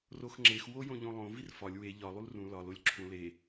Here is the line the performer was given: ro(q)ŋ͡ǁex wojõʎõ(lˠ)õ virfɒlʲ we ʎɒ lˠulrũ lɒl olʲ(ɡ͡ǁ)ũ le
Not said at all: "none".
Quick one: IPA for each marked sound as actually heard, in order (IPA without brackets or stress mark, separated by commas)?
x, lˠ, ǁʰ